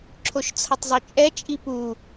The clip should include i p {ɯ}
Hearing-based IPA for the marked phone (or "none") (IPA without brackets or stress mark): u